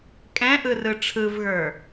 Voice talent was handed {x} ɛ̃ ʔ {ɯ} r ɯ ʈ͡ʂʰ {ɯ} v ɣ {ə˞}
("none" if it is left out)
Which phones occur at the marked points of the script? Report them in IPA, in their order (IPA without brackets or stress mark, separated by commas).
kʼ, ɯ, ɯ, ə˞